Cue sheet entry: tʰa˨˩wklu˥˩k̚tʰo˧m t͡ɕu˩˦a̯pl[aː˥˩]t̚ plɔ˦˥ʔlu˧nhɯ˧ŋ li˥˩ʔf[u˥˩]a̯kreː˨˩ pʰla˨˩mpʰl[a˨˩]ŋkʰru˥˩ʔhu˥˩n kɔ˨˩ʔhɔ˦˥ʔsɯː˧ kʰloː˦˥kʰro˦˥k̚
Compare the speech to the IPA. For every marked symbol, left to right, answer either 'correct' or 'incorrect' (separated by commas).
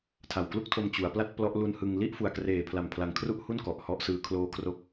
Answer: incorrect, incorrect, correct